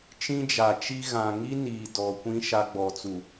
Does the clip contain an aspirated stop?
no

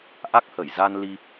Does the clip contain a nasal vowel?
no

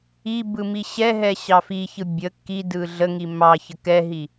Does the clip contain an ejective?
no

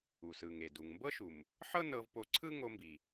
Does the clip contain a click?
yes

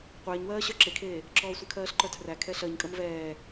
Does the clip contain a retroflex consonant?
no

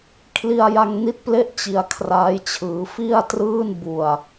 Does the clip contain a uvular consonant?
no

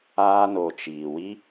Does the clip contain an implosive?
no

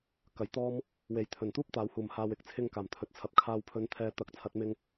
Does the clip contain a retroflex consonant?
no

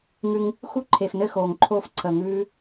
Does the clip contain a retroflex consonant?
no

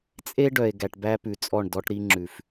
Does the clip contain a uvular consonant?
no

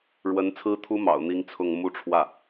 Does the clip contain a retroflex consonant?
yes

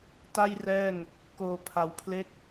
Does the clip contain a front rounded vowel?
no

